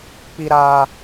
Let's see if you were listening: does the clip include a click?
no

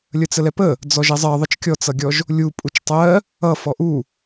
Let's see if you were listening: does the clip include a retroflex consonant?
no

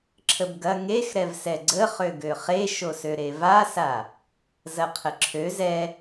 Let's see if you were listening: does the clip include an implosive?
no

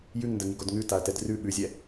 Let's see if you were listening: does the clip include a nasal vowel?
no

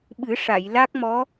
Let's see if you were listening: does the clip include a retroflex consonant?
yes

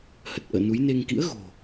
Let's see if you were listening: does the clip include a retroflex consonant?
no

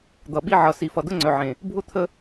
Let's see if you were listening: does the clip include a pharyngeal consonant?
yes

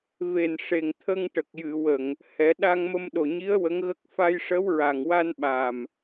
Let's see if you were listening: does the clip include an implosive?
yes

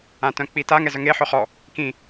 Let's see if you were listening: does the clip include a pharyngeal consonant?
yes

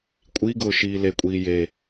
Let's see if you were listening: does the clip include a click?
no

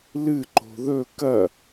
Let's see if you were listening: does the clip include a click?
yes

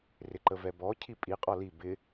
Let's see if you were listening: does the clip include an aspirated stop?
yes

